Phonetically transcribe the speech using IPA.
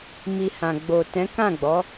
m i˧ h ã˨ ɡ͡b o˨ t ɛ̃˨˦ k ã˦˨ ɡ͡b ɔ˨˦

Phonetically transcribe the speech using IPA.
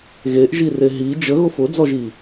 ɣ e ʔ ʒ i r e ɦ i d͡ʒ ə ɣ ʊ f ʊ d͡z ɔ ʒ i

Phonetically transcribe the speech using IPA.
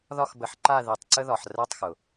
ð ɒ˥˨ x b ə˩˧ ħ ǃ a˥˨ ð i˧˩˧ tˤ ǀ ə˥ ð ɒ˩˧ ħ r ɛ˥˨ tˤ x ʊ˩

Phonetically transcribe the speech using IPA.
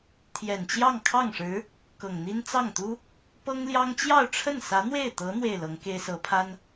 t̪ʰ j ɛ˨˩ n t͡ɕ j ɑ˥˧ ŋ kʰ ɑ˥˩ ŋ ʂ ɻ̩˧˥ | k ɤ˨˩ ŋ n̪ i˥ n t͡s ɑ˥˩ ŋ t̪ u˥ | p ɤ˥ ŋ l j ɑ˥ ŋ t͡ɕ j ɑ˥˧ ʊ̯ ʈ͡ʂʰ ə˥˩ n s ä˧˥ n̪ w e˥˩ ɪ̯ t̪ ɤ˧˥ n̪ w e˥˩ ɪ̯ l ɤ˧˥ ŋ k e˥ ɪ̯ s ɤ˧˥ pʰ a˥ n

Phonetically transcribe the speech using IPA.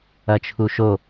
ɐ t͡ʃʰ u ʃ o

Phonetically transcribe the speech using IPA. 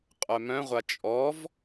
qʼ œ m œ̃ ʁʷ a t͡ʃʼ ɔ v

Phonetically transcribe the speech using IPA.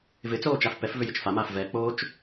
v ɪ t͡s oː t͡ʃ a f p ɛ f v ʏ j ɪ t͡ʃ f a m aː f v ɛ k͡p oː t͡ʃ

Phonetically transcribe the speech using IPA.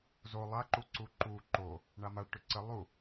z o lˠ a ǃ u ǀ u ǃ u ǃ o | ɳ a m a ɭ ʈ ʏ ǀ ə lˠ u

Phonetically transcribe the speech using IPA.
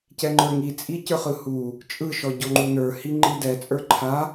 c ɛ ŋ͡ǃ ə˞ ŋ i t͡sʼ i c ə˞ χ ɯ h u | t͡ʃʼ ɯ ʃ ɔ ɟ ɔ ŋ͡ǃ u n ə˞ h i ŋ͡ǃ i d ɛ t͡sʼ ə˞ ǃʰ a

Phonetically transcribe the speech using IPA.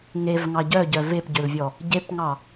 ŋ e v ŋ ɑ ɟ œ ɟ œ v e p ɟ ø l vʲ ɔ | ɟ e p ŋ ɑ

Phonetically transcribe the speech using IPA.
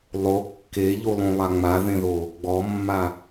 lˠ o kː e ʎ u lˠ ũ lˠ a ŋ͡m a ð ẽ ð o | ɡ͡b ɔ mː a

